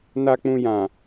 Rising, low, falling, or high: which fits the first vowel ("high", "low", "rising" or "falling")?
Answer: low